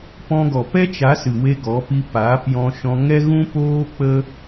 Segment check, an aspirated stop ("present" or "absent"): absent